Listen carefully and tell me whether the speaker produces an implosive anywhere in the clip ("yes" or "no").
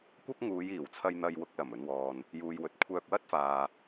no